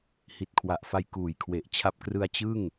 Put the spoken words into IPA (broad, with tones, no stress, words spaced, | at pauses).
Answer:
hi˨˩t̚kʰwa˨˩ʔfa˧j kuː˩˦jkʰwe˨˩ʔt͡ɕʰa˦˥p̚ krɯ˧a̯t͡ɕɯ˥˩ŋ